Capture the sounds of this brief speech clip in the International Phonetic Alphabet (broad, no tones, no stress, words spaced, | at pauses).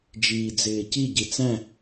d͡ʒiːd͡zɪːci ɟit͡sæ̃